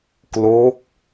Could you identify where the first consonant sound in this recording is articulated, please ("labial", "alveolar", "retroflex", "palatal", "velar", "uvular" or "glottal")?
velar